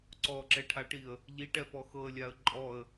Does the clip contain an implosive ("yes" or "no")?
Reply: no